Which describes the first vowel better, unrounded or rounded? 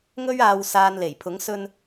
rounded